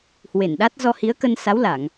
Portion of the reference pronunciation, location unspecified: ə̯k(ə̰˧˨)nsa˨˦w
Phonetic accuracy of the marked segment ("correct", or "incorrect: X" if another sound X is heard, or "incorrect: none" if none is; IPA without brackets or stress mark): incorrect: ə˧